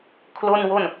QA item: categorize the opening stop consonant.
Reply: aspirated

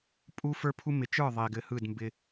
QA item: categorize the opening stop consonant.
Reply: ejective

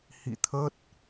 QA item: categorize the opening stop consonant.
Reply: aspirated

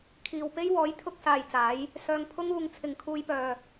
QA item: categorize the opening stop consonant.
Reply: aspirated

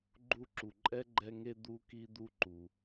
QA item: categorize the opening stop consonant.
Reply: click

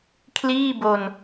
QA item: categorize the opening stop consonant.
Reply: aspirated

